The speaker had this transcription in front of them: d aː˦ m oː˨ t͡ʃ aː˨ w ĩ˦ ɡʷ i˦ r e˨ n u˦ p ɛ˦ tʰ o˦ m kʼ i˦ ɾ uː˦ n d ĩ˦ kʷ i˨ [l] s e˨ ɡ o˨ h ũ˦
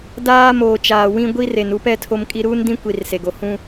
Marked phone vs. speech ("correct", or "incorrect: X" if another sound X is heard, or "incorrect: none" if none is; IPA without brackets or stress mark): incorrect: r